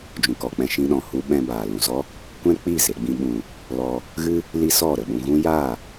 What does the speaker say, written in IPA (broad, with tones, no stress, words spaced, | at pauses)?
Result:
d͡ʒũ˨kɔ˨k͡pɛ̃˧ ʃĩ˦ɗɔ̃˧hu˦ ɓɛ̃˧baː˨ lũ˨zɔ˦ | kʷɛ̃˦k͡pi˦˨ze˧ ɡ͡bĩ˧ɓũ˨ | lɔ˧ | ɣɨ˦ | li˦sɔ˦˨ ɾə˨ɓũ˧ɣũ˦ ja˦˨